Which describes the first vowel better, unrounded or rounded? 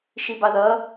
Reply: unrounded